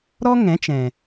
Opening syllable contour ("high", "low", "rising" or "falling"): high